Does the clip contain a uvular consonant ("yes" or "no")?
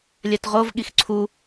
yes